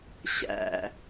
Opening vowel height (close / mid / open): open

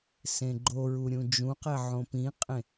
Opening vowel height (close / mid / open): mid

